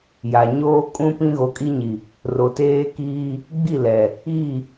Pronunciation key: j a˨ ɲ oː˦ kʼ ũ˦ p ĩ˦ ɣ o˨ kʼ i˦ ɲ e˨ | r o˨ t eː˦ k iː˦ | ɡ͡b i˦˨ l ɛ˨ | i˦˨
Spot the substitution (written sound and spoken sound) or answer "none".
e˨ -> i˨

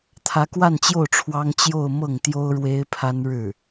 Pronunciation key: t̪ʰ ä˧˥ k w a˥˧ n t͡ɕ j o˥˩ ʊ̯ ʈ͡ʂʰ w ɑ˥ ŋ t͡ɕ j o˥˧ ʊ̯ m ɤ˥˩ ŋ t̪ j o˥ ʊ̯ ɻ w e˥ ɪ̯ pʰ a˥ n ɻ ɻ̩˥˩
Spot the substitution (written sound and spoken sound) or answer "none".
none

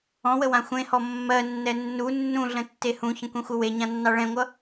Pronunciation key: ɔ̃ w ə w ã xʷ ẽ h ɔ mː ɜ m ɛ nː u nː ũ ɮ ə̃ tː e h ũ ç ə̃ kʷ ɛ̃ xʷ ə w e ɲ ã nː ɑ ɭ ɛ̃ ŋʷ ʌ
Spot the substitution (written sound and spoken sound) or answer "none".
m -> nː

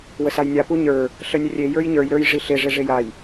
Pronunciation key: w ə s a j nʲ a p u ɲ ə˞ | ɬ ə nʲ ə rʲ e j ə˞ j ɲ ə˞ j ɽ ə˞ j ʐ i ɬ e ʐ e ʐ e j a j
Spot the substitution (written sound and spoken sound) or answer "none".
ɽ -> ɾ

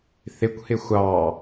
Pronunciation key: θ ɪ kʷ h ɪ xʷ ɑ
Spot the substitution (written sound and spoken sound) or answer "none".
none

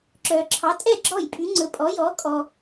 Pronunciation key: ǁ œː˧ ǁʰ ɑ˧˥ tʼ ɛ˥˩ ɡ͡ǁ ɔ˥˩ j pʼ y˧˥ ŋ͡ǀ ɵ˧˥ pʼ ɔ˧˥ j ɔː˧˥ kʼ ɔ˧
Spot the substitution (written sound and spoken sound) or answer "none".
none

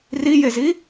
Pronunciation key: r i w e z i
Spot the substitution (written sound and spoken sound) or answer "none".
w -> j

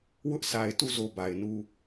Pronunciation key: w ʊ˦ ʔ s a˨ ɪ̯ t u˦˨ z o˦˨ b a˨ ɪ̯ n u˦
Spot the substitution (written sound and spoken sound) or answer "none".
none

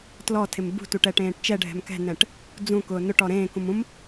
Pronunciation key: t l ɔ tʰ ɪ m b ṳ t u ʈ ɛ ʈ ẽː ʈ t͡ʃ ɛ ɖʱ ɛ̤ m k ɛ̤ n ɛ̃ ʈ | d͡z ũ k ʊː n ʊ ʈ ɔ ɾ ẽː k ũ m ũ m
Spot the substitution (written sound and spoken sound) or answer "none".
none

